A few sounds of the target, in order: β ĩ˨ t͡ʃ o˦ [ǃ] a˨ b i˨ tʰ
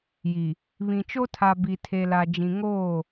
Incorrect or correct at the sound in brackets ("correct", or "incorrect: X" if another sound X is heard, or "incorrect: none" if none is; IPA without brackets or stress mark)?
incorrect: tʰ